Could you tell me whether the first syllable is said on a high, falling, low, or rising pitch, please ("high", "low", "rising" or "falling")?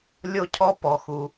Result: high